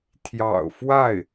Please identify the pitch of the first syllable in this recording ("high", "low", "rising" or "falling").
low